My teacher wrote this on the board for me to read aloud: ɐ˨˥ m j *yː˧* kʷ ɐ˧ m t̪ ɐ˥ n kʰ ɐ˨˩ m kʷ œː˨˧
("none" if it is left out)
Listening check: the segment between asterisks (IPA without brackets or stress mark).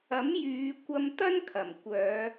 yː˨˧